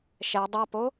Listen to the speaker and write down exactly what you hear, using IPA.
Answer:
ʃ ɛ dˤ ɐ p o

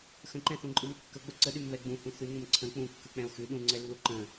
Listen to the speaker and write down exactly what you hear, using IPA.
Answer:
x ə̃ ǃ ɛ̃ θ ũ ǃʼ ɯ m kː ə ɡ͡b ə ǀ ə ɗ ʉ m β ɛ ɡ͡b ũ h ũ θ ʉ ŋ ə̃ m ǀʰ ə̃ k͡p ũ kː ɯ k͡p ɛ̃ o̯ x ʉ ɗ ũ ŋ͡ǀ ɛ lː u ǃ ə̃

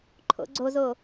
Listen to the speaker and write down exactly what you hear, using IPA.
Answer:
ǃʰ o̰ ɡ͡ǀ o z o

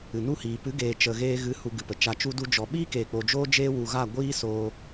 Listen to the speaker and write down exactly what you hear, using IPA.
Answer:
ɨ˨ n u˦˨ h iː˨ p ɨ˨˦ ɡ eː˨ t͡ʃ ə˨ ɣ eː˧ ɣ ɨ˨˦ h u˧ ɡ ɨ˨ p ə˨ t͡ʃ a˧ t͡ʃ u˦ d u˦ d͡ʒ ɔ˨ ɓ iː˦ k eː˨ k͡p o˨ d͡ʒ oː˦ d͡ʒ eː˦ w u˧ ɣ a˦˨ ɡʷ iː˦ s oː˧

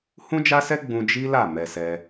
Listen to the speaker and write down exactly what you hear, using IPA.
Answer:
h ũ˦ d͡ʒ a˦ s ɛ˦ ɡ͡b ũ˧ d͡ʒ i˦ l a˦˨ m ɛ˧ s ɛ˧

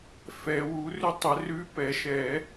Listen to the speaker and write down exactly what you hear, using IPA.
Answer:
f ɛ˨˩˦ w u˨˦ r ʉ˦˥ tˤ ə˨˩˦ r ʉ˧˥˧ p ɛ˨˩˦ ʃ ɛ˨˩˦

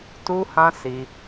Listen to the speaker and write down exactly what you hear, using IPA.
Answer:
t u˦ h ã˦ s i˧

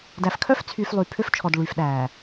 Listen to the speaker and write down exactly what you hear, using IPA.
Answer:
d æ˨ f kʰ œ˦ f t͡sʰ yː˨ f lˠ yː˨ pʰ ø˦ f t͡ʃʰ ɔ˨ d ɭ yː˨ f ɗ æː˨

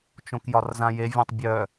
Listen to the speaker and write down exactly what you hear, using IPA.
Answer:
t͡ʃ õ k j ɒ r z ã j e vʲ ẽ tˤ bʲ œ

